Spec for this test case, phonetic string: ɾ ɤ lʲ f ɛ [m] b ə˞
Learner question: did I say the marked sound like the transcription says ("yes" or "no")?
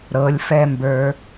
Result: yes